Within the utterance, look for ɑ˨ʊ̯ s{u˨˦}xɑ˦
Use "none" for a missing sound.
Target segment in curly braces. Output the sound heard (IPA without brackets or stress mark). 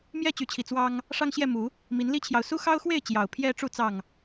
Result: u˦